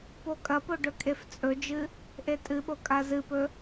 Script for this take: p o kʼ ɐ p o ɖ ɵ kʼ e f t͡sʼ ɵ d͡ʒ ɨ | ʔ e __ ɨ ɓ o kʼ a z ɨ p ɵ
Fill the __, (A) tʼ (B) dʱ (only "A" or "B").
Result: A